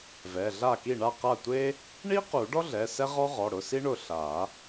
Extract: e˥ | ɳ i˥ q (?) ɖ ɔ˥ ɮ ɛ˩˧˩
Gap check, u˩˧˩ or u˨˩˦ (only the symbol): u˨˩˦